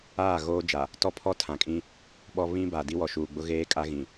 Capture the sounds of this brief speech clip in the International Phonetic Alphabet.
aː˦˨ ɣ oː˦ d͡ʒ a˨ | t ɔ˦ pʰ ɔ˦ tʰ ã˨ kʼ ĩ˦ | ɓ ɔ˦ β ĩ˦ b a˨ d i˦ w ɔ˨ ʃ uː˨ ɡ͡b ʊ˦ ɣ eː˦ kʼ a˦ ɣ ĩ˨

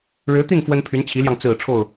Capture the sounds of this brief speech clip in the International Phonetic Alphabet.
ɻ ɻ̩˧˥ t̪ i˥˩ n f w ə˥ n pʰ y˧˥ n t͡ɕʰ i˧˥ l j ɑ˧ ŋ t͡s ɹ̩˨˩ ʈ͡ʂʰ o˥˩ ʊ̯

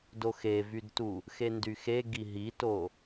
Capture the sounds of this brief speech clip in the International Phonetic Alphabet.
d o x e v y d t u | x e n d y x e ɡ i ɦ i t o

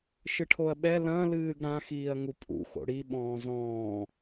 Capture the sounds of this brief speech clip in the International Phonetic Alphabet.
ʃ ɨ ʈʰ o ɐ̯ ɓ ɛ l ɐ̃ l ɨː ɡ ɽ ã x iː ɐ̯ ŋ u pʼ ṵ x o̰ ɽ i ɓ ɔ̃ː z ɔ̃ː

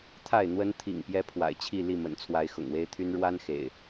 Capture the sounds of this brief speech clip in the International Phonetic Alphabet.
t̪ʰ a˥˨ ɪ̯ n̪ w ə˦ n t̪ʰ ḭ˨˩ ŋ p j ɛ˦ pʰ w a̰˨˩ ɪ̯ t͡ɕʰ i˥˨ l i˥˨ m ə̰˨˩ n t͡sʰ w a˨˦ ɪ̯ x ʊ̰˨˩ ŋ w e˦ ɪ̯ t̪ʰ y˦ n ɻ w a˦ n x ḛ˨˩ ɪ̯

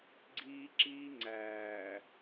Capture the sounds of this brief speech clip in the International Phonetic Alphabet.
ɡ͡ǀ iː˦ ǁ iː˦ ŋ͡ǀ æː˨

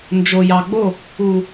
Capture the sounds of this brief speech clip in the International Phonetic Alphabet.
n d͡ʒ o˨ j ɑ˨ ɡ͡b o˦˨ | u˨

